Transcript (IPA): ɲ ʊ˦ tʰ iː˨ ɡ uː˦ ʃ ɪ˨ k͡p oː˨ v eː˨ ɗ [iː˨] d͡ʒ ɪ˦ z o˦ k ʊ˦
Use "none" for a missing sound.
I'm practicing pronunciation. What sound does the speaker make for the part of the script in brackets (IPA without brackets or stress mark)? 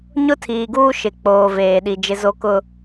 i˨